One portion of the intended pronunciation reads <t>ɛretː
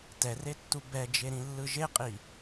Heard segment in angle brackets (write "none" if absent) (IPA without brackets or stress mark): t